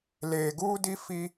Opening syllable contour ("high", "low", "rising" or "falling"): low